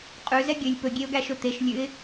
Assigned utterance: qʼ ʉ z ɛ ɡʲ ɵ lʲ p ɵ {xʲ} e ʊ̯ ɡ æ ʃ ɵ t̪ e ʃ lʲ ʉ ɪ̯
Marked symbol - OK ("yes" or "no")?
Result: no